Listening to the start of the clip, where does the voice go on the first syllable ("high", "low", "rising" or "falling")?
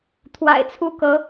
low